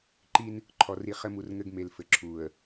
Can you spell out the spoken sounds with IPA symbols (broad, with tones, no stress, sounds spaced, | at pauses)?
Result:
ǃ i˦ n | ǃʰ ɔ˨ r i˨ χ ɘ˦ m u˨ r ŋ ɘ˦ ɡ m e˨ l f ɘ˨ ǁʰ u˨ ə̯